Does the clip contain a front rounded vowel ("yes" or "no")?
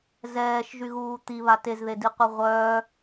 yes